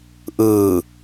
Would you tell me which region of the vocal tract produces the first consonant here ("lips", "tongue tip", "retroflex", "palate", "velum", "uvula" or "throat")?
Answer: throat